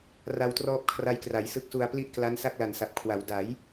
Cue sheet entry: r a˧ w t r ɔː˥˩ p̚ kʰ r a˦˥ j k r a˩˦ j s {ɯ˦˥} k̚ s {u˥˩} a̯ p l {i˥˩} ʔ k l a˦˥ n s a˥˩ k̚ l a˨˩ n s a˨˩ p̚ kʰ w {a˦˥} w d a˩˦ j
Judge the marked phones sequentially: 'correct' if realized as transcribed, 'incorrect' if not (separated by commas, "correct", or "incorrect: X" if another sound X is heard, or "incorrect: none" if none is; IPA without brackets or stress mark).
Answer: correct, incorrect: u˧, correct, incorrect: a˩˦